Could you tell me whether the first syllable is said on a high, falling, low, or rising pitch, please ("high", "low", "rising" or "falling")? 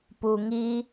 low